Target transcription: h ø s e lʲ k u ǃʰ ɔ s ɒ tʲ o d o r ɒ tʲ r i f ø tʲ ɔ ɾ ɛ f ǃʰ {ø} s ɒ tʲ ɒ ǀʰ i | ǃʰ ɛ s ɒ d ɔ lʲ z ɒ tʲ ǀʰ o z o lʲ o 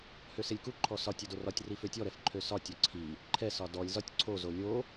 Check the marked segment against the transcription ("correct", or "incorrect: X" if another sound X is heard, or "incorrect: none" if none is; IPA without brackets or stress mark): correct